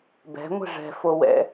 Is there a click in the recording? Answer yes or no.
no